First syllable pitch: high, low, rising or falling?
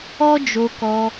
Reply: high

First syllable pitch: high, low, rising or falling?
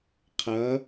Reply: rising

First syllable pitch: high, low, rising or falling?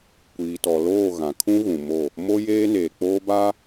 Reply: low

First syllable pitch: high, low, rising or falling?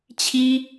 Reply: high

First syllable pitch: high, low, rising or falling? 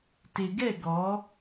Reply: low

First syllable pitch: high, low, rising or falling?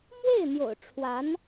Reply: falling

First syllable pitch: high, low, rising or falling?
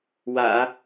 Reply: low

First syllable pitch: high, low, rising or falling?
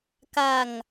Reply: low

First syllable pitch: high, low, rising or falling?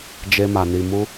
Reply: high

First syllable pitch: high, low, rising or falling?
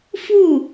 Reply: falling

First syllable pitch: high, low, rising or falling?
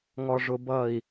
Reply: low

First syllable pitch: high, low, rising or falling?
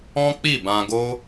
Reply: high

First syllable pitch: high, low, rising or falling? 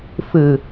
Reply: low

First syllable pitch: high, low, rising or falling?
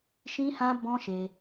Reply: high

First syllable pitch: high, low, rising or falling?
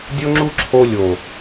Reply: high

